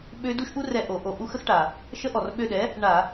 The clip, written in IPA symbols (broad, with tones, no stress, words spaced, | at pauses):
ɓø˦˥ du˦˥ʃʔu˦˥r ɛ˦˨ʔo˧˩˧ʔo˧˩˧ ʔu˦˥xə˦˥xʈa˩ | ʃə˦˥ʔɔ˩rɓø˦˨ɗɛ˩˥ | ɳa˧˩˧